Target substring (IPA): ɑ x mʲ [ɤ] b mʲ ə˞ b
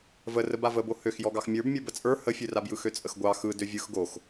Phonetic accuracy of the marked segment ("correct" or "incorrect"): incorrect